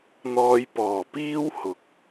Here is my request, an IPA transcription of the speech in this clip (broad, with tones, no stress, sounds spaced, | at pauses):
n̪ ɔː˧ j p ɔː˨˩ p iː˥ w h ʊ˨˥ k̚